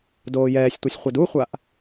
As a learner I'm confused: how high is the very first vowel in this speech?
mid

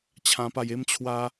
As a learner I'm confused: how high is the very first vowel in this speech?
low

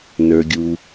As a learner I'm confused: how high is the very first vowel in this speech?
mid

